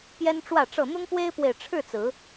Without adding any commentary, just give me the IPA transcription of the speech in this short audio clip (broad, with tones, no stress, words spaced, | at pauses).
pjɛ˦nʈ͡ʂwä˥˨ʈ͡ʂɤ˥˨ n̪ʊ˦ŋpwe˦ɪ̯pwe˨ɪ̯ ʈ͡ʂʰɻ̩˥˨t͡sɹ̩˨˦